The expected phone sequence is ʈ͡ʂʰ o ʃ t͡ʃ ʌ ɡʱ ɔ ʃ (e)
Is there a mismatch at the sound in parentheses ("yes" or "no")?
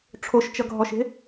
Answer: yes